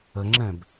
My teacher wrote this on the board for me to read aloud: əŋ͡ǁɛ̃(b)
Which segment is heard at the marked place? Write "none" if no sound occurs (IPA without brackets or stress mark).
b